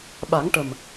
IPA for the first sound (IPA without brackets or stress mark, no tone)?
ɓ